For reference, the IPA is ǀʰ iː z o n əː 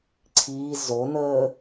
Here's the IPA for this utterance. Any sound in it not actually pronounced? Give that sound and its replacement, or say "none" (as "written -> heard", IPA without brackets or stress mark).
none